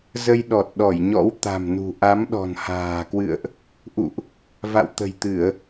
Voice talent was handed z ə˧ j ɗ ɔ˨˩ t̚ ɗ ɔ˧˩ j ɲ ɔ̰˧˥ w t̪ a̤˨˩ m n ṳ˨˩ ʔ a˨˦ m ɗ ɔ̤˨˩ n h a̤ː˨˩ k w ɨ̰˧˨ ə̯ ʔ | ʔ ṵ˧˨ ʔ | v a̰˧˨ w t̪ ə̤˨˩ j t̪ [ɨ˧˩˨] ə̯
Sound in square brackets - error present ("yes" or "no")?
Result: no